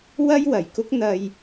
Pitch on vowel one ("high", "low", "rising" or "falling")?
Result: high